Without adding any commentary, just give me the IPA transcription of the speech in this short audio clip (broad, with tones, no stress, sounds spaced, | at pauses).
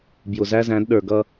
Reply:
b j ʊ˨ z æ˦ z æ̃˨˦ d ɗ ə˞˨ ɡ ʌ˦